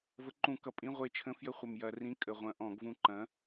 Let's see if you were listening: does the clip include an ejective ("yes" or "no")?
yes